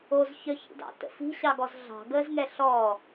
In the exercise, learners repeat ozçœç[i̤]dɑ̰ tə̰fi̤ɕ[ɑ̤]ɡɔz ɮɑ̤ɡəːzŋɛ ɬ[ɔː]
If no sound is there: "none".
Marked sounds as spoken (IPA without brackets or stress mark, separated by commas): ḭ, ɑ, ɔː